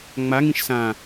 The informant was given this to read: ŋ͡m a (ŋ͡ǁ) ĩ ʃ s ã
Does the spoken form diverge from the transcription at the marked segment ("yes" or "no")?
yes